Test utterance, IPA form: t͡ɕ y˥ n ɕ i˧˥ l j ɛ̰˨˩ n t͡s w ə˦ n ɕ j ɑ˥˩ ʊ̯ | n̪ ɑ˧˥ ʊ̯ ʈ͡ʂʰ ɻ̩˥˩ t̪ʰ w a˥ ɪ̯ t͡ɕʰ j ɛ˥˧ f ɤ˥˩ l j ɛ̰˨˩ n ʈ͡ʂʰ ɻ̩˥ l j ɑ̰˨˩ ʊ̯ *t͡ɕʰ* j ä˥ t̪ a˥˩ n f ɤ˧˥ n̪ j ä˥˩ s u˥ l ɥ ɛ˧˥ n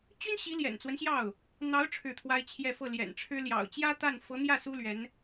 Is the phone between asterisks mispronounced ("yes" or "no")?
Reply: yes